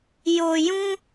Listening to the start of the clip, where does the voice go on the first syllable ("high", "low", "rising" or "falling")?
low